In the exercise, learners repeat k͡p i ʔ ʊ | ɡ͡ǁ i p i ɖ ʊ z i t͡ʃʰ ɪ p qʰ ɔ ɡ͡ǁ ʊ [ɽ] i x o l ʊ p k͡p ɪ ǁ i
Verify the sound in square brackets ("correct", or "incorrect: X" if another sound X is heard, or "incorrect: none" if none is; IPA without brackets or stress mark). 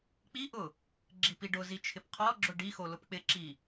incorrect: ɖ